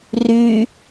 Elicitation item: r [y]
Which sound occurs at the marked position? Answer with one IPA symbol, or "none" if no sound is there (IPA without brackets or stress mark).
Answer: y